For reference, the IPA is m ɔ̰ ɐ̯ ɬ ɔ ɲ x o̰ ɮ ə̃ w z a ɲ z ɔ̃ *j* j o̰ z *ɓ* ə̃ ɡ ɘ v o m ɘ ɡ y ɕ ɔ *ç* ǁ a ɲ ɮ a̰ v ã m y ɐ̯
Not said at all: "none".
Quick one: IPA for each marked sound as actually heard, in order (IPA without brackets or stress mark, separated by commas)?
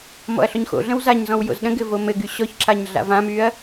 w, ɗ, ç